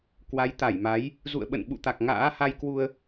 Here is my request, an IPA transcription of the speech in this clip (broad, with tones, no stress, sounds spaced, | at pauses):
k w a˨˦ j t̪ a˧˩ j m a˨˦ j | z ṵ˧˨ ə̯ ɓ ə̰˧˨ n ɓ ṵ˧˨ t̪ a˨˩ k̚ ŋ a̰ː˧˥ h a˧ j k w u˧ ə̯